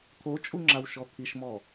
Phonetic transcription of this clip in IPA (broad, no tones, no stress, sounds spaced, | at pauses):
t̪ʰ o t͡ʃʼ u ŋ͡ǁ a w ʃ ɔ t̪ʰ i ʃ m ɔ